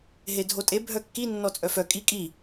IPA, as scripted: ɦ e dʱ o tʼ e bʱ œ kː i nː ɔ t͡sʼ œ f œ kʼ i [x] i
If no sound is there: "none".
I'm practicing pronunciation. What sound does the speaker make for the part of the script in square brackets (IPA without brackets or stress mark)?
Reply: kʼ